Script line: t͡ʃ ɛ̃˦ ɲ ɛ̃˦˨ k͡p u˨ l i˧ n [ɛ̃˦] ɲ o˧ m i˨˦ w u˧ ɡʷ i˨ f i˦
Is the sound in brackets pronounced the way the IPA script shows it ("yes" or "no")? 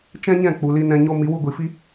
no